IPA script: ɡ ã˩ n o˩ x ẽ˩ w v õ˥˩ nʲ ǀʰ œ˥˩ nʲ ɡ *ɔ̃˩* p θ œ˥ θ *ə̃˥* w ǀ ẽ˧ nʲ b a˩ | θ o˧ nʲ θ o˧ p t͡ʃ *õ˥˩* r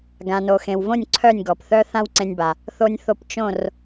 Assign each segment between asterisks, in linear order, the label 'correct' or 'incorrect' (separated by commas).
incorrect, incorrect, correct